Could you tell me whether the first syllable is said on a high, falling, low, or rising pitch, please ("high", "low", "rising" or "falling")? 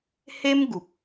high